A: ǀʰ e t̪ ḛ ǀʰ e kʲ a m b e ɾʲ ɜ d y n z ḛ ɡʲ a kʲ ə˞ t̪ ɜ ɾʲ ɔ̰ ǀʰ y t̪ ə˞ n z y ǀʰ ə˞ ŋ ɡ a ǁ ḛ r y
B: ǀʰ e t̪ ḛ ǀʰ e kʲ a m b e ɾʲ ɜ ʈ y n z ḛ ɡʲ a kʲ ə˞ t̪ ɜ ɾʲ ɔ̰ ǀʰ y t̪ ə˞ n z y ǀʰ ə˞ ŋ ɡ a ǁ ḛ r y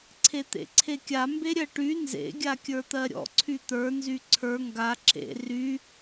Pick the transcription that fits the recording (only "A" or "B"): B